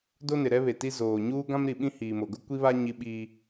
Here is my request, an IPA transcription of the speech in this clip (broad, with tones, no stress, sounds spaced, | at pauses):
d o˦ n ɪ˨ ɾ ɛ˦ β e˨ t i˦ z oː˨ ɲ uː˦ ɡ ã˦ m ɾ i˨ ɓ ĩ˦ h iː˨ m o˨ ɡ ʊ˦ kʷ i˦ β a˦ ɲ i˦ ɓ iː˦